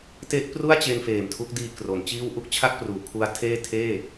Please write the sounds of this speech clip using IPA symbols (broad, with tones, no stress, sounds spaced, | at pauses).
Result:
t e˦˥ ʔ p r u˥˩ a̯ t͡ɕ e˧ n f eː˨˩ m tʰ u˦˥ k̚ d iː˧ k r o˩˦ n t͡ɕ iː˥˩ w ʔ u˥˩ k̚ t͡ɕʰ a˥˩ k̚ p r uː˩˦ kʰ u˦˥ a̯ tʰ eː˥˩ tʰ eː˥˩